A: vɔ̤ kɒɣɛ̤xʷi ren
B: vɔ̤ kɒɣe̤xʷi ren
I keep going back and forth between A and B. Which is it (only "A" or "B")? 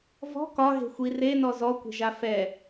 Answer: B